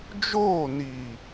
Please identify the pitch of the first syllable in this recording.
falling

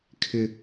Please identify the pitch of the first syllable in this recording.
high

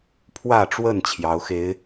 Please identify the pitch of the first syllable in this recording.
falling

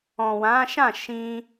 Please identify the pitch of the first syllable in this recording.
low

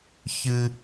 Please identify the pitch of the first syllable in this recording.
high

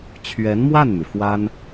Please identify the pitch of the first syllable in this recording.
rising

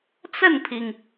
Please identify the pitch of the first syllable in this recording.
falling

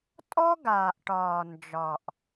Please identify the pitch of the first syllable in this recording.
high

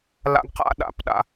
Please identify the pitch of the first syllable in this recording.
high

